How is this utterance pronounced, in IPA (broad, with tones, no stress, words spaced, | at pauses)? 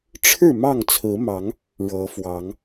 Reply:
ʈ͡ʂʰɻ̩˥˨ mɑ˥˨ŋt͡sʰɹ̩˨˦mɑ˨˦ŋ | ɻɤ˨˦fwɑ˨˦ŋ